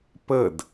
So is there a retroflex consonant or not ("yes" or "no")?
no